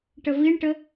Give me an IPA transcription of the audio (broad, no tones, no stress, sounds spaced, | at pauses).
ʈ ə v i ɳ ʈ ə